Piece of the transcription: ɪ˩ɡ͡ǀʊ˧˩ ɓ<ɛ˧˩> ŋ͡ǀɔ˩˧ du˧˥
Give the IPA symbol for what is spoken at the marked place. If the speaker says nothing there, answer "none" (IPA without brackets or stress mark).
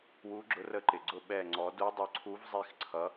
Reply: ɛ˧˩